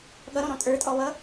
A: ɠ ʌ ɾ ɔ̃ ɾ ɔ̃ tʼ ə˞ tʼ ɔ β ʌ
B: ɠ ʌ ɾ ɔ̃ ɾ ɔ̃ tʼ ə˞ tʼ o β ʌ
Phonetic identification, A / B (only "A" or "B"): A